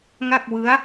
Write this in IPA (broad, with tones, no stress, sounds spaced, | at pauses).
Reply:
ŋ a˥˩ k̚ w ɯ˦˥ a̯